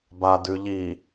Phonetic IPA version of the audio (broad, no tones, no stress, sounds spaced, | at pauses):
b a d ʉ ʎ i